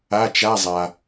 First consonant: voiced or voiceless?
voiceless